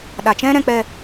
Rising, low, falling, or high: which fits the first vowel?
low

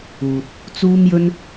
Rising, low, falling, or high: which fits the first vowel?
low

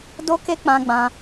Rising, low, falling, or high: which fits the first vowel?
high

